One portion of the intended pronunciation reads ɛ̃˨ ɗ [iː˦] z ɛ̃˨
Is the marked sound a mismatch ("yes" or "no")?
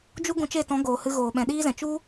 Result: no